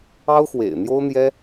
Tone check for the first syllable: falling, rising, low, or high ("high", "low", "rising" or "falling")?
high